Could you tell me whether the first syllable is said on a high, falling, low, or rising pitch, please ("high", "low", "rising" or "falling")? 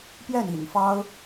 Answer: falling